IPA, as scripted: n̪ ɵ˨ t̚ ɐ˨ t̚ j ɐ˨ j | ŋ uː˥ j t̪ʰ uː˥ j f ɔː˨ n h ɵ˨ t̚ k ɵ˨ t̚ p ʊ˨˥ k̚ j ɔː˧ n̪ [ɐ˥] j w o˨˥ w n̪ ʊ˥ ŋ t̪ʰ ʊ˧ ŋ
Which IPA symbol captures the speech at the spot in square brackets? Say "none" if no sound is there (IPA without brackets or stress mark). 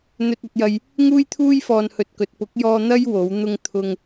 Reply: ɐ˥